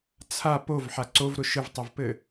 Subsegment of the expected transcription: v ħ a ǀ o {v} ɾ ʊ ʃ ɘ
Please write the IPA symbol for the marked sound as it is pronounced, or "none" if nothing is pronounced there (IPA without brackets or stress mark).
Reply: v